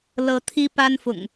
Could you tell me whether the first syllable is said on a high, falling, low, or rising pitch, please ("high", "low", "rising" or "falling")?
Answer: rising